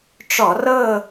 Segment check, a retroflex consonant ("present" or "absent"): present